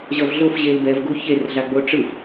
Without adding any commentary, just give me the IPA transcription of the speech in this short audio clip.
ʑ ʌ v ɮ o f ʑ e l b ɛ v ɡ u ç e r ɮ a ɡ͡b o ʈ͡ʂ ɯ f

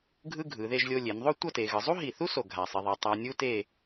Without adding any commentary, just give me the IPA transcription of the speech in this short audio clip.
ɡʱ ɯ˥ ɡʱ ɯ˩˧ ð e˥˧ ʒ lʲ o˧ lʲ e˩˧ n ðˤ o˥˧ tʷ ʌ˥˧ t e˩˧ ɣ ɯ˩˧ zˤ u˥ ɦ i˧˩ θ u˥ s o˧˩ ɡʱ a˧˩ sˤ i˧ ðˤ ʌ˧ tˤ a˧ nʲ u˥ t e˥˧

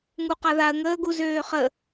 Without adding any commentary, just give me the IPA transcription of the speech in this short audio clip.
ŋ u q a ð a ə̯ ŋ əː ɡ u z øː χ ə

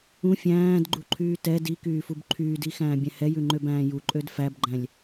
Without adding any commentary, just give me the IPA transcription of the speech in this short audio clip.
ũ fʲ æ̃ː d ɡ͡ǃ u ǃʰ yː t ɛ d i k yː f u b ǃʰ yː d i x æ̃ː bʲ æ̃ h ɛ j ʉ ŋ͡ǃ ø b æ̃ː j u ǃʼ ø d f æ b ɡ͡ǃ æ̃ lʲ

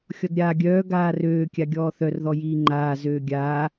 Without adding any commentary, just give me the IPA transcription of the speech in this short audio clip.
xʲ ɔ d ɾʲ aː ɡʲ œː ɡ aː r øː kʲ a ɡʲ ɔː θ œ r ð ɔ j iː ŋ͡ǃ aː z øː ɡʲ aː

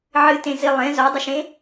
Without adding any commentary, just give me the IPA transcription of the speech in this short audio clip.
ʕ ɨ t ẽ z i lˠ ẽ z ɔ dˤ ɪ ʃ ẽ

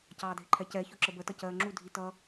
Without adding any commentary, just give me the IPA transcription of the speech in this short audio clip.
c ɑː dʱ ɪ ǃʰ ɛ c ɛ ç ʊ ǁ ə b ə t ʌ c ɜː ŋ͡ǁ u dʱ i t ʌː

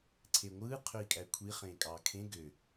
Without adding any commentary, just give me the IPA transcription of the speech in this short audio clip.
ǀʰ e ŋʷ ɯː qʰ ø i̯ kʼ æ kʷʰ i χ ẽː kʼ ɑː kʰ ẽ ɡ ø

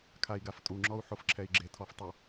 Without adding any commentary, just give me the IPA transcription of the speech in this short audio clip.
kʰ a i̯ ɡ a f tʼ u ŋ͡ǁ ɔ u̯ ħ o f ǁʰ ɛ i̯ ɡ͡ǁ e tʰ ɔ f tˤ ʊ

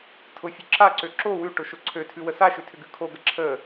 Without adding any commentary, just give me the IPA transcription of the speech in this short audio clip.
tʰ ʊ fʲ ʉ ǁ a ǀ ø ǁ o w ʉ ʈ ʊ ʃ ʊ ǀʰ ø tʰ ʉ w ə s a ʃ ʏ tʰ ʏ ɡ ʉ kʰ o ɡ ə ǁʰ ə

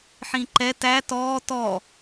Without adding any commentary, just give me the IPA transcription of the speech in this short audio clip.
ħ ĩ ǃ ɛ t æ t ɔː t ɔ

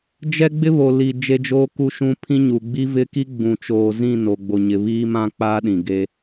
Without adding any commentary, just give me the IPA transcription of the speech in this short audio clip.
d͡ʒ ɛ˦ ɡ͡b ɪ˦ β o˨ l i˨ d͡ʒ e˦ d͡ʒ oː˦ k u˦ ʃ ũ˦ pʰ ĩ˦ ɲ u˨ ɡ͡b i˦ v ɪ˦ k i˦ ɡ͡b ũ˨ t͡ʃ oː˨ z ĩ˦˨ n o˨ ɡ͡b o˨ ɲ ɪ˨ β iː˦ m ã˦ k͡p a˦ ɗ ĩ˨ ɡ e˦

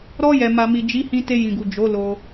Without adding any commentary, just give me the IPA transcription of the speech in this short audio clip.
ɾ ɔ˧ j ɛ˨ m a˨ m i˨ d͡ʒ i˨˦ h ĩ˧ t e˧ j ĩ˨ ɡ u˨ d͡ʒ o˨˦ l o˧

